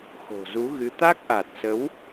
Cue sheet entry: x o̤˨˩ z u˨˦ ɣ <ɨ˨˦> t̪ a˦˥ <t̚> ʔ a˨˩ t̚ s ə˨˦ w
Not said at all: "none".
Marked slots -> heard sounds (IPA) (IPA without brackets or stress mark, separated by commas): ɨ˨˦, k̚